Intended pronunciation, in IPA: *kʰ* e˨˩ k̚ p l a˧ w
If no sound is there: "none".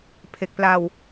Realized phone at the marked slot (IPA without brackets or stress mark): pʰ